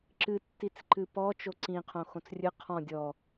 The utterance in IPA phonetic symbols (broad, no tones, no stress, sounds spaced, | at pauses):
ǁ ɨ tː i t͡s ǃ ɨ p ɔ t͡ʃ o ǀ ĩ qʰ õ x õ t͡s rʲ ɨ qʰ ɔ̃ dʲ ɔ